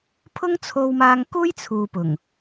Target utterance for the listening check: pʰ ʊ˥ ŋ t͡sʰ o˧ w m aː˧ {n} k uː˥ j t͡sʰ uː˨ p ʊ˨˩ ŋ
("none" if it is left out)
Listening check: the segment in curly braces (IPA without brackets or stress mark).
ŋ